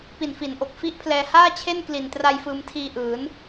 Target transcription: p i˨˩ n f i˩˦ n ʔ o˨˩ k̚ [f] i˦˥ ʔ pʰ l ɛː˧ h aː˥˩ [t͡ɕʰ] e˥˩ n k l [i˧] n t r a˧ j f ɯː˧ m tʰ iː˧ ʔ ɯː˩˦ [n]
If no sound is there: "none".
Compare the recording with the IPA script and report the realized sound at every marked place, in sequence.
f, t͡ɕʰ, i˨˩, n

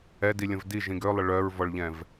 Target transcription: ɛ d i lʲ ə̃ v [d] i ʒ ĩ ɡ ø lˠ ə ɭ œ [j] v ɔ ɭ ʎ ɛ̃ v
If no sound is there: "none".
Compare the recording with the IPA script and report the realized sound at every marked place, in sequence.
d, ɹ

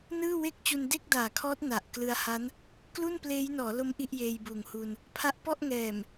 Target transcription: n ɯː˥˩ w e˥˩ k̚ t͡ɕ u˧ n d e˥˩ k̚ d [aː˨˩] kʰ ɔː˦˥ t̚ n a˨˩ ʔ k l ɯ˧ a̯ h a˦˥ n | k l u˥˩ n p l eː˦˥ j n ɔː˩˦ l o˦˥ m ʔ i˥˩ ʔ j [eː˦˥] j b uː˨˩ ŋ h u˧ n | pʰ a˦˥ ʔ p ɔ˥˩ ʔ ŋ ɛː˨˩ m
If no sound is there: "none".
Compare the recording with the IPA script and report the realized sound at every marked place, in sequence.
aː˨˩, eː˧

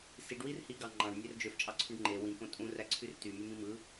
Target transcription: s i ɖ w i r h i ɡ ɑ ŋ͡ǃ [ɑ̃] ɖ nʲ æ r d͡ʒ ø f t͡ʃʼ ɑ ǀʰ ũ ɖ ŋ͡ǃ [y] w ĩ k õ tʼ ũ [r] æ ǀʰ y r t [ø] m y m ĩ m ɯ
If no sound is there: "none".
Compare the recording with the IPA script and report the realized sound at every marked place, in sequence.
ɑ̃, e, r, y

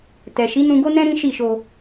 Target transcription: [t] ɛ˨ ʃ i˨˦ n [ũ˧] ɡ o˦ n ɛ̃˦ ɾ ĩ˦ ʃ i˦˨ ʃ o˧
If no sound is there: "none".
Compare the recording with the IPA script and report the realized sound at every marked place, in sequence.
t, ũ˧

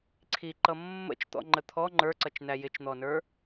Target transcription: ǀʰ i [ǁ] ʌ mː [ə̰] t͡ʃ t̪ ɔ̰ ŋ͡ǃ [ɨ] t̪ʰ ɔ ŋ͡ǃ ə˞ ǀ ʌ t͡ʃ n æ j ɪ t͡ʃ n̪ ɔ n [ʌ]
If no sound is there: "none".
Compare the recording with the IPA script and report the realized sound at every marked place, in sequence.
ǃ, ə̰, ə, ə˞

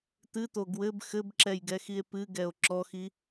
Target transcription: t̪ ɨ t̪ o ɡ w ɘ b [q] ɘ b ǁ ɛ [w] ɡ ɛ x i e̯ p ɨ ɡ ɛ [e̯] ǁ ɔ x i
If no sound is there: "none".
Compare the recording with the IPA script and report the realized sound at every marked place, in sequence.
x, j, o̯

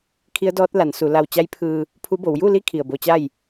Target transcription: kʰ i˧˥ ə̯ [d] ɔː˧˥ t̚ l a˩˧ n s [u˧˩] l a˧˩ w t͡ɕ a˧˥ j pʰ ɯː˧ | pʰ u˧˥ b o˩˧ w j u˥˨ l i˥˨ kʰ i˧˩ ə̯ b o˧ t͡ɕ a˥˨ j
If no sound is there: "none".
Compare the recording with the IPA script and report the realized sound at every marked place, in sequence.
d, u˩˧

